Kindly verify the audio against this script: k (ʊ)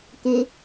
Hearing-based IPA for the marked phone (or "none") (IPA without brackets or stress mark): ʊ